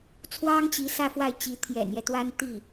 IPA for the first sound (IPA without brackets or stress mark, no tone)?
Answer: t͡sʰ